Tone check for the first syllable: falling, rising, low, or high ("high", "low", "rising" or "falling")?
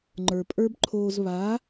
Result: low